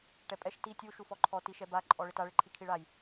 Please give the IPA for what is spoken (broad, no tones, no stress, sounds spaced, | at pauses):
ʈ ɛ pʼ ɛ ʃ t i tʲ u ʃ u f ɔ ǃʰ ɔ t i ʃ ɛ b a ǃʼ ɔ ɭ ɪ t a ɭ ɪ ǃʰ i kʰ i ɭ a j